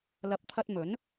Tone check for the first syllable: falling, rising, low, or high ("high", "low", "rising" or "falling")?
rising